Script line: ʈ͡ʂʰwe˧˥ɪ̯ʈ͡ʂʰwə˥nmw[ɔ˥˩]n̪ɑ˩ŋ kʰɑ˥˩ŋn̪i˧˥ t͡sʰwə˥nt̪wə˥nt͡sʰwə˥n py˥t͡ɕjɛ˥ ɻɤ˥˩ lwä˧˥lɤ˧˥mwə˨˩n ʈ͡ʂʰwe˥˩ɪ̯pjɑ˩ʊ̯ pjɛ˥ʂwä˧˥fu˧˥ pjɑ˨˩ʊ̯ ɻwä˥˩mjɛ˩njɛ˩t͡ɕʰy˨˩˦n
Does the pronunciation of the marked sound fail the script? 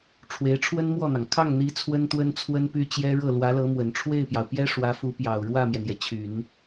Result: no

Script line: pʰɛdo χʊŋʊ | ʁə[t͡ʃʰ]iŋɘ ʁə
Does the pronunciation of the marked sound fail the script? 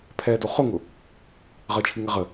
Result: no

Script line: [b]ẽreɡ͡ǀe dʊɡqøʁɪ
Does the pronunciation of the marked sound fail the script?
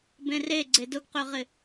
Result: no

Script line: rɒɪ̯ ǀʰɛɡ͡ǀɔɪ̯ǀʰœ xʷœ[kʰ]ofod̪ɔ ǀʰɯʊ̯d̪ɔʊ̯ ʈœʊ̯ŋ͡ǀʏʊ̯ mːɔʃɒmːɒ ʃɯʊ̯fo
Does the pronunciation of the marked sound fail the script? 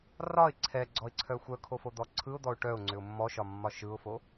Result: no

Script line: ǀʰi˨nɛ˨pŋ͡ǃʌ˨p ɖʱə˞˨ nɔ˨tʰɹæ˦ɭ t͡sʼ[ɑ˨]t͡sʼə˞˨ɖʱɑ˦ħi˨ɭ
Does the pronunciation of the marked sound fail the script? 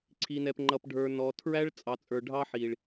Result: no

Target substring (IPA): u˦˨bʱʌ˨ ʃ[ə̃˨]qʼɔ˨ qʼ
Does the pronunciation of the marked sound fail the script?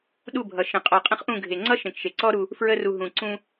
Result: no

